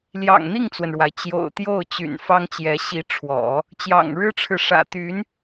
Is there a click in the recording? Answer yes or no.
no